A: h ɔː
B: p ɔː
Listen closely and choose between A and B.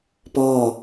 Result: B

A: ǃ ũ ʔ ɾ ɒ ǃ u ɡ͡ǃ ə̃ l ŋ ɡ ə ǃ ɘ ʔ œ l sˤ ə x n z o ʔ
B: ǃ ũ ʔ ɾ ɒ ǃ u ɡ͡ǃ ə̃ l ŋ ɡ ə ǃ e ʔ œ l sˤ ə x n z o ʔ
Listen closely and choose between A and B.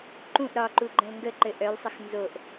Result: A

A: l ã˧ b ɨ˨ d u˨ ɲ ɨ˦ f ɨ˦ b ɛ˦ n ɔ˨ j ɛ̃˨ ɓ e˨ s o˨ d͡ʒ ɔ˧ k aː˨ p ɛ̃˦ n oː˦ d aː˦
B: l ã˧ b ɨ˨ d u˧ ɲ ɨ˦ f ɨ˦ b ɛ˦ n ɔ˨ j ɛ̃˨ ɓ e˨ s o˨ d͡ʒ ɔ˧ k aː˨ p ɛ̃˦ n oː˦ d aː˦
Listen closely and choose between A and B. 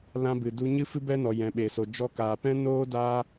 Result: B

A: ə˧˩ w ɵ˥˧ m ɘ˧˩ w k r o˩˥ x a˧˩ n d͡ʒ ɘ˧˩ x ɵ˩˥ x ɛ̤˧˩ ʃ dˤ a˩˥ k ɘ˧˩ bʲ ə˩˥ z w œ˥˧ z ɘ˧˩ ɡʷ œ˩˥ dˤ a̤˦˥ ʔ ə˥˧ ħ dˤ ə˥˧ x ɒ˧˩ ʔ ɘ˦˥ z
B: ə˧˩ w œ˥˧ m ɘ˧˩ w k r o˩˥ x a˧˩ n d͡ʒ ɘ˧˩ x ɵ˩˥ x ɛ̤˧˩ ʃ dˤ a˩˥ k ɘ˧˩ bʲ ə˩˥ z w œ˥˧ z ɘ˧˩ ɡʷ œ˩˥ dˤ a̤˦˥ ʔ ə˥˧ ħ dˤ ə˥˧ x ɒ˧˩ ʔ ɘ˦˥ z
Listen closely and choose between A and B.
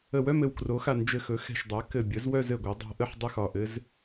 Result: B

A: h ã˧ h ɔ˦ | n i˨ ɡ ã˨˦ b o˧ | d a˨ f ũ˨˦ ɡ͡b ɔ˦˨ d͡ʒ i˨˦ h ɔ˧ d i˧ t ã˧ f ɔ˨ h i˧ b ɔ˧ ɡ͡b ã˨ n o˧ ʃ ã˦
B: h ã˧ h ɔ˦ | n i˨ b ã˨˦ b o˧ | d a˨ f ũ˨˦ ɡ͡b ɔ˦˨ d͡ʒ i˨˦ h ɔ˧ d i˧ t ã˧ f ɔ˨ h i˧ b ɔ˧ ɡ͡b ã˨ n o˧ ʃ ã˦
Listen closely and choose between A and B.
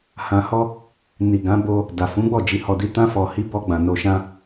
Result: A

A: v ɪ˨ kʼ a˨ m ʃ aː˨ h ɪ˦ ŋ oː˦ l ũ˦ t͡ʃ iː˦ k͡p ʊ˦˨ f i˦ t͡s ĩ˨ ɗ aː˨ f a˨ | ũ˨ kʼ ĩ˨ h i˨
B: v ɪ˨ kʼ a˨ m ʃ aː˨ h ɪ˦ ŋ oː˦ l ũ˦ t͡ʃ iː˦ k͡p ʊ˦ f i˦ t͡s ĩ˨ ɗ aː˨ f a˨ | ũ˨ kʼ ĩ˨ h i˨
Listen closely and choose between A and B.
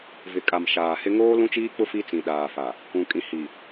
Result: B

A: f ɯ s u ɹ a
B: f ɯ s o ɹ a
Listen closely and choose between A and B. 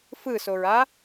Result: B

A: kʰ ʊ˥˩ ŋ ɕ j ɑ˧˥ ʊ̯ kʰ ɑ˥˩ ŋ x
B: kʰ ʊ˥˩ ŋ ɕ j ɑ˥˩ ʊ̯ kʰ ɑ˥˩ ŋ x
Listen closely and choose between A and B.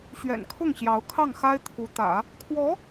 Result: A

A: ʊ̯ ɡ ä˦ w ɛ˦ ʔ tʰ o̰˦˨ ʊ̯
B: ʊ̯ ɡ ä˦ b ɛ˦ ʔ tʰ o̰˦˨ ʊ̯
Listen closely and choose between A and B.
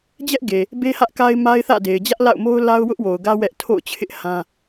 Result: A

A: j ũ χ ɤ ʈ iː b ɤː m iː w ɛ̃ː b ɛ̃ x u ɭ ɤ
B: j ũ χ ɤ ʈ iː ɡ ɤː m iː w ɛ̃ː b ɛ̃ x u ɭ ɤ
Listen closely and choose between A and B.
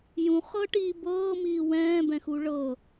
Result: A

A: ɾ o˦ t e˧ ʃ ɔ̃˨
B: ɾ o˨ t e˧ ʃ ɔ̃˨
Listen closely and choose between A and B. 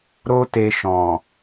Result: A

